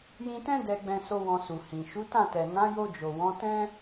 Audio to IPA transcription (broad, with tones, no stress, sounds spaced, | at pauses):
j ĩ˧ t ɛ̃˦ d ɛ˧ ɡ͡b ɛ̃˧ s o˦ w ɔ̃˧ s u˨ h ĩ˨ ʃ u˨˦ t ã˦˨ t ɛ˨ n ã˨˦ j o˧ d͡ʒ o˨ w ɔ̃˨˦ t ɛ̃˦